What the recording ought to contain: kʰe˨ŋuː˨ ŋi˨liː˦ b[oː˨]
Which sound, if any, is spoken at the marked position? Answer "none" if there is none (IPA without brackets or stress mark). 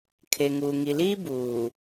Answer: uː˨